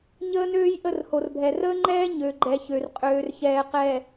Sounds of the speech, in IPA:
ɲ əː˦ n øː˦ j ʔ ə˦˨ r h o˨ r bʱ ɛ˨ r əː˦ ŋ͡ǃ ɛː˦ ɲ ø˨ ɡ͡ǃ ɛ˨ ç ø˨ r qʼ øː˨ r ç ɛː˨ q ɛ˨

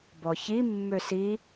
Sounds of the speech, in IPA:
b ɔ ç i mː ø s i

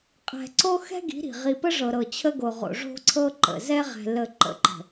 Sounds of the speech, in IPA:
qʼ ɛ̤˨ ǀ o˦ x ɛ̤˦ ɡ i̤˨˦ ɾ i̤˨ ʁ i˨ p ə˦ ʐ ɤ˨ ɾ ɤ˨ t͡ɕʰ ə˦ ɡ o˨ ʁ o̰˨ ʐ o̤˦ ǀʰ ɤ˦ ǃ ə̰˨ z ɛ˦ ʁ ɛ̤˨ l ə˨ ǃ ə̰˨˦ ǃ ə̤˨

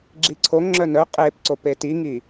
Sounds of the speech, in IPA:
ɡ͡ǁ i ǀʰ o ŋ ŋ͡ǁ œ n œ qʼ e p ǀ o p e t i ŋ i

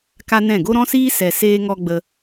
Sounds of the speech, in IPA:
k a˦ n ɛ̃˦˨ ɡ o˦ ɾ ɔ̃˦ s iː˦ s ɛ˨ s eː˧ ŋ ɔ˧ ɡ͡b ə˧

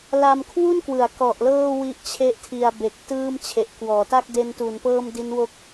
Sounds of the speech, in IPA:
l a˧ m kʰ w u˥˩ n k w ɯ˩˦ a̯ k ɔ˨˩ ʔ l ɤː˥˩ w i˥˩ ʔ t͡ɕʰ e˥˩ ʔ tʰ i˧ a̯ b e˨˩ k̚ t ɯː˥˩ m t͡ɕʰ e˨˩ ʔ k w ɔː˩˦ t a˥˩ k̚ d e˧ n t u˩˦ n p ɤː˥˩ m d i˦˥ n w o˥˩ k̚

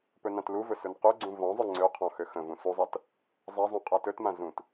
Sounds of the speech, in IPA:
p ɵ n ã t l u v ɵ s ɵ n q ɵ ɡ͡ǀ ũ v ɔ̃ zˤ ɵ ŋ͡ǀ ø qʰ ɔ̃ x ø x ə̃ v ũ s u zˤ a t | zˤ a zˤ ũ qʼ a t ɵ t m ã z ũ t

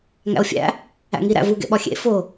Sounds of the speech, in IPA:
ŋ æ̰ o̯ fʲ æ̰ | æ̰ ŋ i ɾ æ̰ v u ɡ ḛ ɓ ɒ xʲ ḛ f o

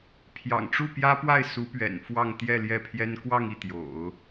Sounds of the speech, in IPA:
pʰ j ɑ̰˨˩ ŋ ʈ͡ʂ u˥˩ p j ä˥ p w a˥˩ ɪ̯ s u˧˥ p ɥ ɛ̰˨˩ n f w ɑ˥˧ ŋ t̪ j ɛ˥˧ l j ɛ˥˩ pʰ j ɛ˥ n k w ɑ˥˧ ŋ i˥˩ t̪ j o̰˨˩˦ ʊ̯

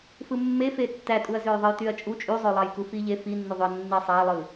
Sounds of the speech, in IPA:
f ɯ mː e f e tː æ tʼ u ɐ̯ z ø j ðˤ ɯ j t y ɐ̯ t͡ʃʼ u t͡ʃʼ y zˤ ø lˠ ɑ j k u f i ʎ e f i nː u ðˤ y ɐ̯ nː i sˤ æ lˠ ɯ

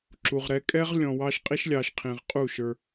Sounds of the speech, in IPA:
ǁ u˨ ʁ ɾ ɛ˧ kʼ ɛ˦ ʁ lʲ ɔ̃˨ w ɑ˧ ʃ qʼ i˦ ʃ lʲ ɑ˧ ʃ qʰ ĩ˨ ʁ qʼ u˦˨ ʃ ə˞˧

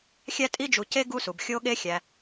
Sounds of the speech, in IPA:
xʲ æ˦ tʼ i˦ d͡ʒ u˨ c e˥ ɡ u˦ s u˩ b xʲ o˦ ɠ e˦ xʲ æ˩

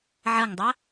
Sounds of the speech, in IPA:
ʕ ʌ ŋ dˤ a

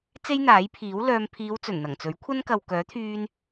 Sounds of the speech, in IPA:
t͡s e˥ j n̪ aː˨˥ j pʰ iː˨˥ w l œː˧ m pʰ iː˨˧ w t͡s ɵ˨˩ n n̪ ɐ˨˩ ŋ t͡s ɵ˨˥ ɥ kʷʰ ɐ˥ n k ɐ˨ w k œː˨˥ t̪ʰ yː˧ n

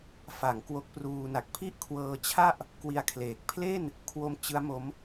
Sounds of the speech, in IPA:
f a˩˦ ŋ k w o˦˥ k̚ p r uː˧ n a˨˩ k̚ pʰ i˥˩ ʔ kʰ w ɤː˧ t͡ɕʰ a˥˩ ʔ | k w i˧ a̯ kʰ l eː˨˩ k̚ pʰ l e˥˩ n | kʰ w o˧ m t͡ɕ ɯ˦˥ a̯ m o˦˥ m

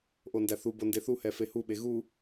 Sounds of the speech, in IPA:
ʔ o n d æ θ u b o n d e θ u h ɛ f e h u ɓ e ɣ u

